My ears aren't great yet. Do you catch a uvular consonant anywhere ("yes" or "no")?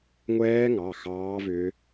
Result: no